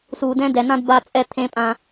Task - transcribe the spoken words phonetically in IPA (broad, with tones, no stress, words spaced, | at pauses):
suː˨dɛ̃˧dɛ˨nã˧d ba˧t͡sʼɛ˧t̪ʰẽ˧ pʼã˧